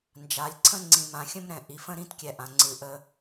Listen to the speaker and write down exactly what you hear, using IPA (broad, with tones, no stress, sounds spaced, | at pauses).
n d͡ʒ a˨ lʲ ǀʰ ə̃˥ ŋ͡ǀ ĩ˨ m ã˨ xʲ ə̃˥ m ɾ ɛ̃˩ ʔ i˨ f ə̃˥ ɾ ĩ˥ t kʲ ɛ˨ ʔ ã˩ ŋ͡ǀ ɨ˩ ʔ ə˨